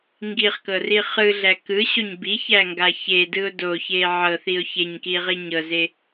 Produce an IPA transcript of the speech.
ŋ ɡ i χ k ɤ r i χ ɯ ɮ æ k ɯ ɕ o ɲ b i ç æ ŋ ɡ a ç e d ɯ ʊ̯ d o ç e ʕ ɤ θ i ʊ̯ ç e ɲ k i ʁ i ɲ ɤ z e

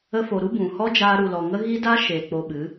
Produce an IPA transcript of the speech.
ə˧ f o˨ ɾ u˦ b ũ˨ h ɔ˦ d͡ʒ aː˧ ɾ u˨ l ɔ˨ ŋ ə˦ ɣ i˦ d a˦ ʃ e˨ k͡p o˧ ɓ ɨ˨˦

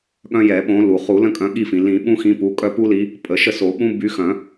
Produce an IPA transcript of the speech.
ɠ œ̃˦ j ɛ˨˩˦ ɓ õ˨˦ l u˩ χ u˨˩˦ l ə̃˦ kʼ œ̃˨˦ ɠ i˦˨ f ĩ˩ l ĩ˨˩˦ ɓ ũ˦ x ĩ˨˦ p u˩˧˩ kʼ œ˦˨ p u˦ l i˨˦ | pʼ ə˨˩˦ ʃ ə˦˨ s o˨˩˦ ɓ ũ˦ b y˨˦ x œ̃˨˩˦

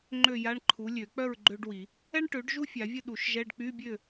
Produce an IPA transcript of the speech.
ŋ͡ǃ ø˥˨ j a˧˥˧ ɳ ǃʰ u˩˥ lʲ ø˨˩˦ k͡p œ˥˨ ɹ ɡ͡ǃ ø˥ ɖ w i˨˩˦ | ɛ˥ ɳ ʈ ø˩˥ ɖ ʒ u˥ fʲ a˨˩˦ vʲ ə˥˨ ɗ u˨˩˦ ʃ ʒ ɛ˧˥˧ ɖ k͡p y˧˥˧ bʲ ø˥˨

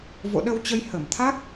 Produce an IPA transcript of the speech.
v o̰˧˨ ɗ ə˧ w t͡ɕ ə˧ j h ə˧˩ m t̪ʰ a˦˥ k̚

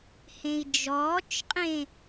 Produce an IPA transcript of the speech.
h ẽ i̯ d͡ʒ ɔː t͡ʃ qʼ ẽ

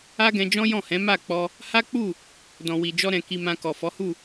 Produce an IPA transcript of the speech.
a˦ ɡ ɛ̃˧ d͡ʒ ɔ̃˦ j ɔ̃˦˨ h ɛ̃˨˦ m a˦˨ k͡p ɔ˧ | h a˦ k͡p u˦˨ | d ɔ̃˨ w i˨ d͡ʒ ɔ˧ ɾ ɛ̃˨ k i˨ m ã˨ k ɔ˨ f ɔ˨˦ h u˦˨

